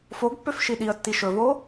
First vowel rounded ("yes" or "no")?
yes